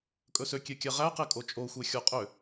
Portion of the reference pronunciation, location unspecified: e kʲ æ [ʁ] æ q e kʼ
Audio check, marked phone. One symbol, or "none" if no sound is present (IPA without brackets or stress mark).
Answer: ʁ